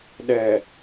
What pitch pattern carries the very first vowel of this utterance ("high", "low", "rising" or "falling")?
low